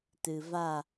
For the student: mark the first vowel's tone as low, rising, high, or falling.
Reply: low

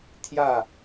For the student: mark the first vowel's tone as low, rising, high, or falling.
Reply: falling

